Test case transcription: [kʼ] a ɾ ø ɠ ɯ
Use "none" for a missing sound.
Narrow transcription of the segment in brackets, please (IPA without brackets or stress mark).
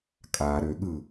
kʼ